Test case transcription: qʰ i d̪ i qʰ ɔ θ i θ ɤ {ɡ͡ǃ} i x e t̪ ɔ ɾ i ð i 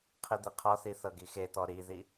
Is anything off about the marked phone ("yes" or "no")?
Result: yes